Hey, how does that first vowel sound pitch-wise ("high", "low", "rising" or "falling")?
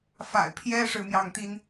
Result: low